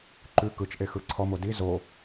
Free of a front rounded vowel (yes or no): yes